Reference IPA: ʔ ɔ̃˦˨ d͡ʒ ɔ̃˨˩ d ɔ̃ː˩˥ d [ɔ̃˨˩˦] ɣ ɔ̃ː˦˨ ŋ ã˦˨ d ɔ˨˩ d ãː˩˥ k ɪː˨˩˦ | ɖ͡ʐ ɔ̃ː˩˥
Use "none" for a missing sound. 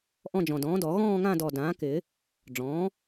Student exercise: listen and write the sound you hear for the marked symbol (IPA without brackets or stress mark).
ɔ˨˩˦